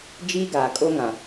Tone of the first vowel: high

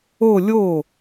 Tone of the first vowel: falling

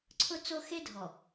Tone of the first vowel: high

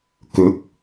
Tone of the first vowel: rising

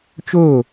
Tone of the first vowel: falling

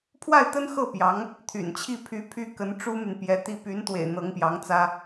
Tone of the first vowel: falling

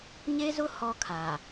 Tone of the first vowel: high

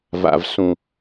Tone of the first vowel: low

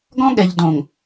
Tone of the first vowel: high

